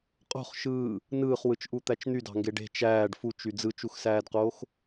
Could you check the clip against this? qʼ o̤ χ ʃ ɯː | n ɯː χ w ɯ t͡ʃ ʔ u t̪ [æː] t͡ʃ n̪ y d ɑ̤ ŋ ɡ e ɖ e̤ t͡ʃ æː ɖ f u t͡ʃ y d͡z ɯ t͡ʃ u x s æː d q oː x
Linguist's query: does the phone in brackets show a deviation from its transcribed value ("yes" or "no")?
yes